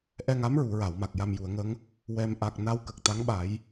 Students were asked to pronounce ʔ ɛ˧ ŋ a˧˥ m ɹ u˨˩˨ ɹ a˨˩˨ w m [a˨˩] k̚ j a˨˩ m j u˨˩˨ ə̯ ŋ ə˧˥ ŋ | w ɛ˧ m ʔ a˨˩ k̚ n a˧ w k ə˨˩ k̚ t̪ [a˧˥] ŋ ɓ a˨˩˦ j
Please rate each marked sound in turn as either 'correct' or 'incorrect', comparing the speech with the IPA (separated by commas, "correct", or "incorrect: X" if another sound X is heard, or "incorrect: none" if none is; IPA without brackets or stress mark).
correct, correct